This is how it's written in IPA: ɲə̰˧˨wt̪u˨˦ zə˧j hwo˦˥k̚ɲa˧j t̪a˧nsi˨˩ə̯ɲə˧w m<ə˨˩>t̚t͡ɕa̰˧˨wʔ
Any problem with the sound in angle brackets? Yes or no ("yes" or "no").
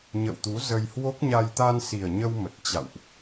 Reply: no